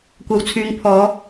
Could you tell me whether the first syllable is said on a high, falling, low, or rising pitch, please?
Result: low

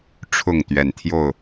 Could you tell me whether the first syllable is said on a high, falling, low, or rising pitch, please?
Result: falling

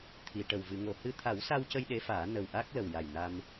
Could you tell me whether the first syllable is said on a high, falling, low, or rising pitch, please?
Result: low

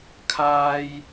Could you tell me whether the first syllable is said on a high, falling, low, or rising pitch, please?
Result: high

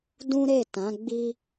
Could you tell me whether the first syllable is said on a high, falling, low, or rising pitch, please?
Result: high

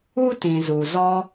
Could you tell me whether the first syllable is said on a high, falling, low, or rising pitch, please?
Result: high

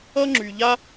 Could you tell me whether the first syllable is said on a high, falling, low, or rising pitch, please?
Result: high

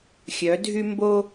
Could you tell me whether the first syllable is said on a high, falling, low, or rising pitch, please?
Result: rising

